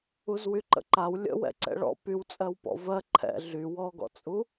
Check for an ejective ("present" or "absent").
present